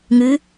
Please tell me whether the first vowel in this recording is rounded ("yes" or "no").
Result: yes